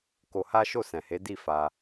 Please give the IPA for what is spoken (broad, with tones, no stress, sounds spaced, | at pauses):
k o˧ h a˦ ʃ o˦˨ s ɛ̃˨ h e˨˦ d i˦˨ f a˧